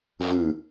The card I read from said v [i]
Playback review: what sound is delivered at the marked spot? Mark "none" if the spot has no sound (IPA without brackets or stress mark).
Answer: ɨ